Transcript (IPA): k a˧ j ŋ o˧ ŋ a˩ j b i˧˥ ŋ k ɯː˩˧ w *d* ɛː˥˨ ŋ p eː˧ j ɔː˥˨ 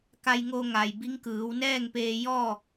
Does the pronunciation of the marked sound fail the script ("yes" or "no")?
yes